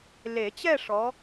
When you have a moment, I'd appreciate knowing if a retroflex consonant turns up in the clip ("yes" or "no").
yes